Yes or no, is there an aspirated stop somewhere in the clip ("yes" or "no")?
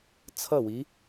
yes